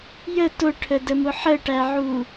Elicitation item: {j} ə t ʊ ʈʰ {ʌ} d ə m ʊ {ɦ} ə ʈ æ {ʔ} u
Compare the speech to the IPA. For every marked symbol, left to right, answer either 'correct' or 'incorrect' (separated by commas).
correct, incorrect, incorrect, incorrect